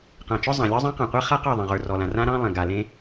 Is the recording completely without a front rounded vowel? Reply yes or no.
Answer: yes